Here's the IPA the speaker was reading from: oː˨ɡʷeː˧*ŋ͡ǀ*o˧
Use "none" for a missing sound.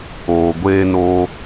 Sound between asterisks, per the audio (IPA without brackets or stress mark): n